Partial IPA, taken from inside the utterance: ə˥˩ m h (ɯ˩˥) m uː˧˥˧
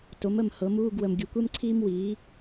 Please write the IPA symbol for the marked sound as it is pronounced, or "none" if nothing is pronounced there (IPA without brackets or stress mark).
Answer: ɤ˩˥